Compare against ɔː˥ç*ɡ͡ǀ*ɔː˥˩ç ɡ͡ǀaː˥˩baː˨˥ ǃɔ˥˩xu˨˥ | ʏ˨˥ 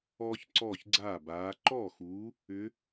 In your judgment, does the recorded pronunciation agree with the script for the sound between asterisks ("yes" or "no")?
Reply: no